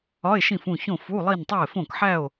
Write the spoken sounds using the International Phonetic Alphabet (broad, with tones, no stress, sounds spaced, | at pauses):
ɒ˧˥˧ e̯ ʃ ĩ˥˨ f ũ˥˨ ç õ˥˨ f u˧˥˧ lˠ i˥˨ n tˤ o˥˨ e̯ f õ˥˨ k ħ æ˥˨ o̯